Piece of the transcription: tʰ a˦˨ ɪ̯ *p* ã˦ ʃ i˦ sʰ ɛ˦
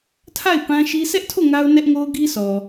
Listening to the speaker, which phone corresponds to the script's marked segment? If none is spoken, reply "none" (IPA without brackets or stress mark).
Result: p